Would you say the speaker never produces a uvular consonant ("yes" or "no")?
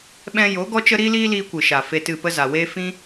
yes